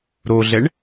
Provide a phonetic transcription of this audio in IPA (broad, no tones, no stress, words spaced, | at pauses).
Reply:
ɾoɮɛɳ